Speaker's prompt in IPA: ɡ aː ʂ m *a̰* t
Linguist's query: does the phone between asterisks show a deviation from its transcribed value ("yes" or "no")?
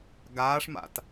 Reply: no